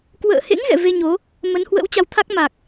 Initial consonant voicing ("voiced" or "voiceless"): voiceless